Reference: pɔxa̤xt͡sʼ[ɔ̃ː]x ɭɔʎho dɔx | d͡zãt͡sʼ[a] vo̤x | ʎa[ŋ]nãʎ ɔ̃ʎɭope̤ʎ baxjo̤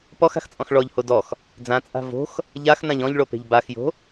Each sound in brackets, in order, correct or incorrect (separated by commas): incorrect, incorrect, incorrect